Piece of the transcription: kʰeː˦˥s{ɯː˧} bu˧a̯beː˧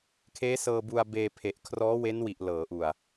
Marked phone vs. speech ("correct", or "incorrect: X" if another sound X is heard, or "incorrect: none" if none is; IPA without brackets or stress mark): incorrect: ɤː˧